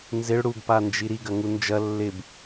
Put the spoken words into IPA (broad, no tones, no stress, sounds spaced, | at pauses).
n z ɪ ɭ ɽ u ɡ p a n d͡ʒ i ɾ i ɡ ɐ ŋ u n d͡ʒ ɐ lː ɪ b